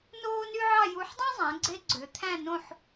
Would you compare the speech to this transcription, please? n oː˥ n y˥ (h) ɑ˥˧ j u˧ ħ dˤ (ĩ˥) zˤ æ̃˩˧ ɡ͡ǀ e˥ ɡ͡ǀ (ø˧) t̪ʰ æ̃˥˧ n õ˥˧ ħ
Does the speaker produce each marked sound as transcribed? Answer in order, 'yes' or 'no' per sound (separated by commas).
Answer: no, yes, no